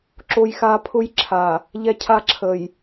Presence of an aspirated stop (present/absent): present